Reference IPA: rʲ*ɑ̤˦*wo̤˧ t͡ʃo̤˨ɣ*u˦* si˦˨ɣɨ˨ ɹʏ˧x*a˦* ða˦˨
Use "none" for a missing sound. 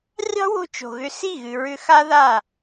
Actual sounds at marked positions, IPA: ɑ̤˦, ʏ˦, a˦

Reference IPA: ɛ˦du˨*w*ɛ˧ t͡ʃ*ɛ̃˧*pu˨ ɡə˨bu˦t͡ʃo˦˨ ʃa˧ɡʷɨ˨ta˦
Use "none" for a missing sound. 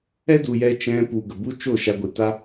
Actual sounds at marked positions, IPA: j, ɛ̃˧

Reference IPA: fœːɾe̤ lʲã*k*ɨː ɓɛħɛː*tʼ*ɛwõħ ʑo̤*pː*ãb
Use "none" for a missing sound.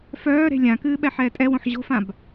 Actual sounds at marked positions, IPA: k, tʼ, f

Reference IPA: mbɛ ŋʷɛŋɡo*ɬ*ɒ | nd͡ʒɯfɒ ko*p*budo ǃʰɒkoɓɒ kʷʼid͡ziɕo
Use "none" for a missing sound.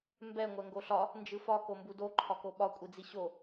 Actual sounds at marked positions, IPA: ɬ, m

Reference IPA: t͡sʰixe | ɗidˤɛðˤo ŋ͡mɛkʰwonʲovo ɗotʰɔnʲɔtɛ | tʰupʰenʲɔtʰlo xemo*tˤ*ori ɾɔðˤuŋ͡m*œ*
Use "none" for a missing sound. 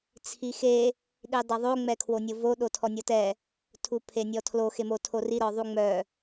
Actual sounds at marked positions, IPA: tʰ, œ

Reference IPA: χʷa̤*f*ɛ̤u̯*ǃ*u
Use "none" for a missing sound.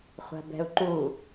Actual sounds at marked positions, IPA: b, ǃ

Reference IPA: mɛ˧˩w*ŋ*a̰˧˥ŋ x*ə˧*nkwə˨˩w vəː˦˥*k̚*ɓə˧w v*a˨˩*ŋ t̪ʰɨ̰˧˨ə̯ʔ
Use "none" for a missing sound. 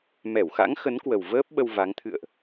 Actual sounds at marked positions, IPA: x, ə˨˦, p̚, a˨˦

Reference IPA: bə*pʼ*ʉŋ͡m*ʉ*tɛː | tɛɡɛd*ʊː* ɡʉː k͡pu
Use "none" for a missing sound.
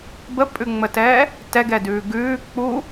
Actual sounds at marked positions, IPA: pʼ, ə, ʉː

